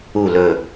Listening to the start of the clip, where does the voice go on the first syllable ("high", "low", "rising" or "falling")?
falling